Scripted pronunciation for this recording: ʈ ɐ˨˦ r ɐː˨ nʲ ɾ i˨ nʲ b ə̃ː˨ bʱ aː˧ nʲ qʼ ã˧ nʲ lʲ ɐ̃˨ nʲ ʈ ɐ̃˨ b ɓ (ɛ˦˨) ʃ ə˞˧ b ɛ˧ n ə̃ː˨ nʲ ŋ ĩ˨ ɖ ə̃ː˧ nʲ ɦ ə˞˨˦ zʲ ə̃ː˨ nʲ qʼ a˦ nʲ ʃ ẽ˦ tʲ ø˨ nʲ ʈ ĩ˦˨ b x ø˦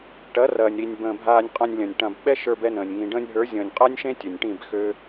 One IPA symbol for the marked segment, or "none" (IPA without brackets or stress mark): ɛ˦